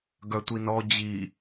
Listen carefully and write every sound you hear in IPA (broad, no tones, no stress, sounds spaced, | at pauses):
ɡ œ tʷ i n ɔ d͡ʑ i